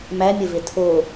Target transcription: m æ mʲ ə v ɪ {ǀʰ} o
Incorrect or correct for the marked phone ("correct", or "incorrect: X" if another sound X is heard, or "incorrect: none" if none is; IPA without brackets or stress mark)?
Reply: incorrect: tʰ